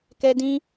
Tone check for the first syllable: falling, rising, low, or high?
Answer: high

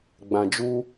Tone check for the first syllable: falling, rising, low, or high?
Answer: low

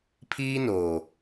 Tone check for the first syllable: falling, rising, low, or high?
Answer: high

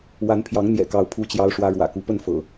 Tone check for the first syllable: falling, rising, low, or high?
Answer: rising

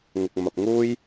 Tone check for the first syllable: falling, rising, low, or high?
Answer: low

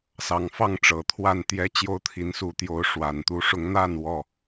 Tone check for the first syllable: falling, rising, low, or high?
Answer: low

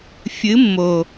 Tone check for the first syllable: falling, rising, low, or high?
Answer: rising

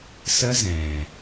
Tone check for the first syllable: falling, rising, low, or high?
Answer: high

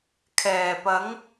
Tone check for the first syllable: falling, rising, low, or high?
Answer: low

